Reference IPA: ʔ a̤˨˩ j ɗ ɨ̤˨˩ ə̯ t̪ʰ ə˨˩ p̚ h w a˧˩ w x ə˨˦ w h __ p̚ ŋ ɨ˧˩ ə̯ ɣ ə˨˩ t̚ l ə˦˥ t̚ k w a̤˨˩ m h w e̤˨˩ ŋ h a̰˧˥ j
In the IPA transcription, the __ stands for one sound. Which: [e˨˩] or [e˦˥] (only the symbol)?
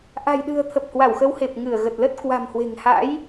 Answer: e˨˩